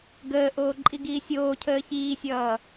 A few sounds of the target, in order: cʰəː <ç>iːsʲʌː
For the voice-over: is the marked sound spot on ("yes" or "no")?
yes